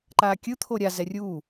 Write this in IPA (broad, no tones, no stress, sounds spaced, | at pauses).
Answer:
ǃ aː kʲ ɯ t̪ʰ o ɾʲ a z ɛ rʲ u